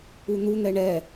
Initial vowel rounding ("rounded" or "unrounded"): rounded